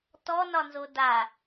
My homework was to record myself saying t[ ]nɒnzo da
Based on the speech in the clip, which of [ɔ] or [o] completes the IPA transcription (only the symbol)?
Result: ɔ